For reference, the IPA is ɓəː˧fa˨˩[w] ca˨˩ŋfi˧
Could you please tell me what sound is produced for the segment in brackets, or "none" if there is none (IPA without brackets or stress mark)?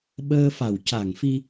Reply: w